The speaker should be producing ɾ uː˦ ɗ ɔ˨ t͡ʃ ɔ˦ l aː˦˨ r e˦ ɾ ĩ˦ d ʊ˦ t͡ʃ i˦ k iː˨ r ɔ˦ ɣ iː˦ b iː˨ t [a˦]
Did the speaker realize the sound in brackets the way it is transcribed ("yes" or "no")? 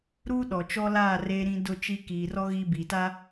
yes